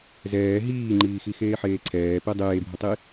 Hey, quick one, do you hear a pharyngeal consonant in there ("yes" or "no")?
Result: yes